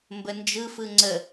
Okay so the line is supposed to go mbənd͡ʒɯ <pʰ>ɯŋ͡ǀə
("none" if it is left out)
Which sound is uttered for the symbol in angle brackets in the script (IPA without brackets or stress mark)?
f